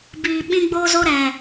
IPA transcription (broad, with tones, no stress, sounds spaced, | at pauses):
b iː˨ ɓ ĩ˧ ɡ͡b o˧ z o˧ ɾ ɛ˨